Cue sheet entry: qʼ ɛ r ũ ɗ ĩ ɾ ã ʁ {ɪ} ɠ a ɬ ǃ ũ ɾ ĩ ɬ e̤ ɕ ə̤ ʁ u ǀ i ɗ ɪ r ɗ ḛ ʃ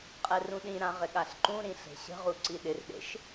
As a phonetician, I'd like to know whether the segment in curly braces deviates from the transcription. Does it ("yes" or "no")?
no